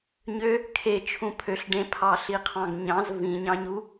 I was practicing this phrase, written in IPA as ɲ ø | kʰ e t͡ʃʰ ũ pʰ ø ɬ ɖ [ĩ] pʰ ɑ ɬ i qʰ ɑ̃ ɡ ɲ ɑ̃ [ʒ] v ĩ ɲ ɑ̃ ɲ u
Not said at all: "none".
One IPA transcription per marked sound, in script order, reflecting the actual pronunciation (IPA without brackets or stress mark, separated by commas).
ẽ, z